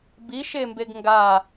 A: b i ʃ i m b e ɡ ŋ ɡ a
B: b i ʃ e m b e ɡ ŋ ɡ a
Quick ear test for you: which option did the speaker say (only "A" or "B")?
B